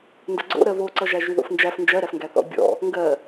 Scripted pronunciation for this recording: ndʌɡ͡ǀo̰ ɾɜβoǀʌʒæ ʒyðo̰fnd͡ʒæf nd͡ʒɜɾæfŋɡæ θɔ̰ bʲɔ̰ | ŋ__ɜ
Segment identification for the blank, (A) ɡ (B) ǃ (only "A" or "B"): A